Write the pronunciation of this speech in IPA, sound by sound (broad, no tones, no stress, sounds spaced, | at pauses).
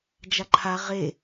d͡ʒ a ǃʰ a ʁ e